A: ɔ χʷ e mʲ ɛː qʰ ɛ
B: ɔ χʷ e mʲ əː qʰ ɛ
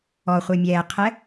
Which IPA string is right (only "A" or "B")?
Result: A